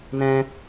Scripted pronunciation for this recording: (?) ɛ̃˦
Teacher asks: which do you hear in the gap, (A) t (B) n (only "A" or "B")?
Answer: B